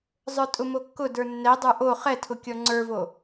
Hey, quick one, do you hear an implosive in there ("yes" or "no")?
no